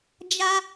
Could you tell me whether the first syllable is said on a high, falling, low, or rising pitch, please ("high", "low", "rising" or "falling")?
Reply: high